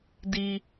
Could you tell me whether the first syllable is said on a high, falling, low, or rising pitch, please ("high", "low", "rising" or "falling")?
high